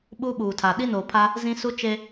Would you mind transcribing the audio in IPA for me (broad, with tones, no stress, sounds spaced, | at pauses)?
ɓ u˦ ɓ uː˨ tʰ a˨ ɗ i˦ n oː˨ pʰ a˦ | z ĩ˦ s u˦ t͡ʃ e˦